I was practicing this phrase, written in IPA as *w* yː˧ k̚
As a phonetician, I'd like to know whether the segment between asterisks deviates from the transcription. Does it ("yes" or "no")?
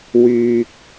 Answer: no